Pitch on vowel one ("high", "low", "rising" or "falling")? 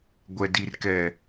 low